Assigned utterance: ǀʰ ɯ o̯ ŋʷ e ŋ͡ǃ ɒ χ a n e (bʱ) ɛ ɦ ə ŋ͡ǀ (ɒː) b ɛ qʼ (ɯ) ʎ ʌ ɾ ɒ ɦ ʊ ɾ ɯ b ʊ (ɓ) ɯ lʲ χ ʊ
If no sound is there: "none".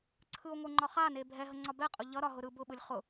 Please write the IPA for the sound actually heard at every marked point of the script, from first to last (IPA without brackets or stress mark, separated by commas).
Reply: bʱ, ɒ, ʊ, ɓ